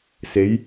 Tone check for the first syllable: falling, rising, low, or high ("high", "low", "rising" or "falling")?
rising